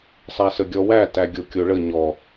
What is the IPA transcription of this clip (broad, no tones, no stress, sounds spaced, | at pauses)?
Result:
sˤ æ s ə ɡʲ ɔ w æ t æ ɡʲ o kʲ o ɭ ə ɲ ɔ